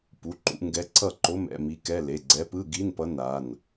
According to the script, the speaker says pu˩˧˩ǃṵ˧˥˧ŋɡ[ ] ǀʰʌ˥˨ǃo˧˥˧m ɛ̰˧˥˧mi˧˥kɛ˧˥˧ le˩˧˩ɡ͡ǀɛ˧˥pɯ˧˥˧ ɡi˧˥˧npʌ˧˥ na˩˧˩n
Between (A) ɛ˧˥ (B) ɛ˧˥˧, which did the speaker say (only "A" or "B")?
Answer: A